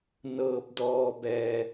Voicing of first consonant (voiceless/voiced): voiced